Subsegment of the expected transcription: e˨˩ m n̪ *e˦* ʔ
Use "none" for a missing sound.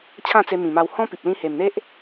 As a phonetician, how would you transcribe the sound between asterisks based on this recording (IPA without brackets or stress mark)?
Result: e˦